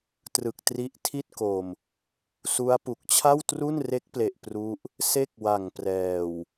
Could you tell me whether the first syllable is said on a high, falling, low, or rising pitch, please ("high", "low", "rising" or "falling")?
low